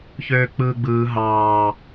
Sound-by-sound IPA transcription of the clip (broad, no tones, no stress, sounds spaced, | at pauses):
ç øː k͡p ɯː ɡ͡b ɯː ɦ ɑː